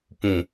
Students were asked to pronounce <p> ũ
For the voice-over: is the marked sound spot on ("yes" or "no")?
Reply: yes